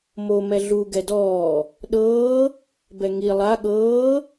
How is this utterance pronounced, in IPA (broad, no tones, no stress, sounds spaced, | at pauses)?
m o m ɛ ɮ u ɡ ɛ d ɔː | ɗ ɤː | b ɛ ŋ i lˠ a ɠ ɤː